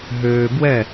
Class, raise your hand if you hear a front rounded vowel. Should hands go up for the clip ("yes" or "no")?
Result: yes